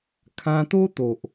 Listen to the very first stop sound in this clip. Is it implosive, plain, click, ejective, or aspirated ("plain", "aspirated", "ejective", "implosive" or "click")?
aspirated